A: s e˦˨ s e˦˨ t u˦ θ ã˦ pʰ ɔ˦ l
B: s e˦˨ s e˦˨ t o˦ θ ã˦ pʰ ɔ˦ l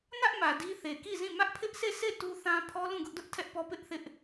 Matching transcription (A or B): A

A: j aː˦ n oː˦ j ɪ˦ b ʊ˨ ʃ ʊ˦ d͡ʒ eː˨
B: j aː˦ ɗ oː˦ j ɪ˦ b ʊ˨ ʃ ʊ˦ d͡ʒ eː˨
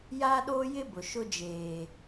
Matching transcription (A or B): B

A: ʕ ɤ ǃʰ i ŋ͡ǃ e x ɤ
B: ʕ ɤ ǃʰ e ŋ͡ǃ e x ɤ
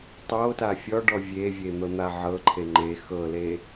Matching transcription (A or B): B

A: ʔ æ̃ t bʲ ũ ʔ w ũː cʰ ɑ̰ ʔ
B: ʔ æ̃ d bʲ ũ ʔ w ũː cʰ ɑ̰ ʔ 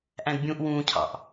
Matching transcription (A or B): B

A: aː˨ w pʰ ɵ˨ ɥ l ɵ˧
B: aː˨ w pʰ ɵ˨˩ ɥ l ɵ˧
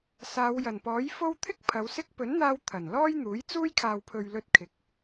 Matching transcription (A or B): A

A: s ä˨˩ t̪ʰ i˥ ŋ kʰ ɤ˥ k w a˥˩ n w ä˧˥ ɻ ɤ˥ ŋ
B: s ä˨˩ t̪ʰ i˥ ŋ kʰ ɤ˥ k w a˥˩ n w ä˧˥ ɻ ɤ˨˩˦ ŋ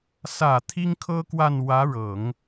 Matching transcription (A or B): B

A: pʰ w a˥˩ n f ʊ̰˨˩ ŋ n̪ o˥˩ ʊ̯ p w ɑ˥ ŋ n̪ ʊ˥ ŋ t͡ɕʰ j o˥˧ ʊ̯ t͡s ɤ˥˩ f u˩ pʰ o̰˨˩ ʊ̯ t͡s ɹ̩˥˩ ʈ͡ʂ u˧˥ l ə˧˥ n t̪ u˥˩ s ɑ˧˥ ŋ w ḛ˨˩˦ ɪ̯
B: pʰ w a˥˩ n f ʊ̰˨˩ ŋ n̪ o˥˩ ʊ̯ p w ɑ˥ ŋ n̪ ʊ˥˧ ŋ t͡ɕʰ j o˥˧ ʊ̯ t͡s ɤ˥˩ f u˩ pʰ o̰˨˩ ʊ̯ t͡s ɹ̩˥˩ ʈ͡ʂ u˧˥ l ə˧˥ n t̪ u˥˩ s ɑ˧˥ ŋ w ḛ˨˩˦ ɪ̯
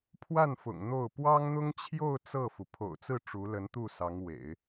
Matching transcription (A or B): A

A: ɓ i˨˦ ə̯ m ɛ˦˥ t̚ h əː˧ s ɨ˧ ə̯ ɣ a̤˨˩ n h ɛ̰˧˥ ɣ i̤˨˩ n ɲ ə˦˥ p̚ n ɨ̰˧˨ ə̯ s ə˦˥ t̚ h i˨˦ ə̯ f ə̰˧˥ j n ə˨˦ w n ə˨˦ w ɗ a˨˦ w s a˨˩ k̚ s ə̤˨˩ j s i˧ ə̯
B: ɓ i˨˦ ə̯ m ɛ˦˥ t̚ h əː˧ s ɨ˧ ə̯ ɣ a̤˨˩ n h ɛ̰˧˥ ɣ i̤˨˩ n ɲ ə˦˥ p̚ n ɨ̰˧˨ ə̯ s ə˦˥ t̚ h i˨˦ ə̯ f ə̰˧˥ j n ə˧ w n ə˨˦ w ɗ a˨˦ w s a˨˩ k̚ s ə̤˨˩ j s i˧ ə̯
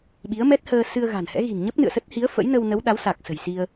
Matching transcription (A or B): B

